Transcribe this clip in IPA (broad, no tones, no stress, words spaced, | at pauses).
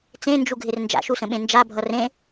t͡sẽnd͡ʒuɡʱɪr nd͡ʒa̰ʃusə̃ɓẽ nd͡ʒabʱʌ rẽ